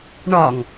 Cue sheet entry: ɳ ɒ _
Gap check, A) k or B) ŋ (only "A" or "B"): B